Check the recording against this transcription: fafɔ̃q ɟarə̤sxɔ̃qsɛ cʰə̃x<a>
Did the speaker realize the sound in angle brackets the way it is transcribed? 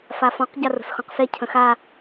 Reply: yes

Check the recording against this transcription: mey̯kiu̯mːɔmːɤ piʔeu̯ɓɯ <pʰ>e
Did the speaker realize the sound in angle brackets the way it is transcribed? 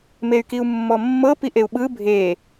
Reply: no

